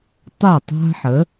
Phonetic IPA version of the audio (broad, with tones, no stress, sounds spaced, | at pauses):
tˤ ɛ˥˩ tˤ a̤˥ ħ ə˩˥